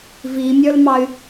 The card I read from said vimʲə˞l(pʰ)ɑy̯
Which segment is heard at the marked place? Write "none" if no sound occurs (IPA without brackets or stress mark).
m